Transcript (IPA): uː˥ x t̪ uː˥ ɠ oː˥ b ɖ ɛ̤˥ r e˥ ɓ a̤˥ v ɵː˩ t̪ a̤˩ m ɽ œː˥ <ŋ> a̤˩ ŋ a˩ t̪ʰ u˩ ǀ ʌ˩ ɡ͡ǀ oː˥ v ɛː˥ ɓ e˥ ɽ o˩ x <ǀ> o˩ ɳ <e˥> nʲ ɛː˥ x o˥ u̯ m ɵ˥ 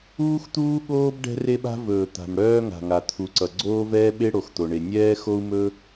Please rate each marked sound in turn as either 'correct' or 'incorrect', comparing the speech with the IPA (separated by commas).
correct, incorrect, incorrect